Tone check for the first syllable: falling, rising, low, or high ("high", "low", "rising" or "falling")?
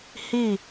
falling